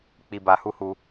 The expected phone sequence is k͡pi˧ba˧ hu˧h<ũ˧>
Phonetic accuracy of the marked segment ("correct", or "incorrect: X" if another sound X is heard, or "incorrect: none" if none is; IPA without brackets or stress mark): incorrect: u˧